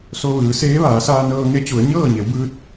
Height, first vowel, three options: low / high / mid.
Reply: mid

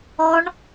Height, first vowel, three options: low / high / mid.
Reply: mid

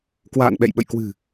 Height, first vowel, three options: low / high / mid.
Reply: low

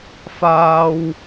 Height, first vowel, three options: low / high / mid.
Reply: low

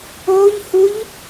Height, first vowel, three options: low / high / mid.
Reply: mid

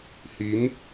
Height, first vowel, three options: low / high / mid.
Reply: high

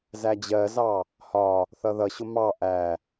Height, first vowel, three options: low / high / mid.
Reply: low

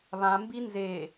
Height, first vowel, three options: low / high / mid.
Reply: low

